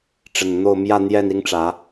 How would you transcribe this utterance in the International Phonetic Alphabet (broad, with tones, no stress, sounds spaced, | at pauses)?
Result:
ʈ͡ʂ ə˨˩ n n̪ o˥˨ ʊ̯ m j ä˥˨ n̪ j ɛ˥˨ n i˦ ŋ ʈ͡ʂ ä˨˦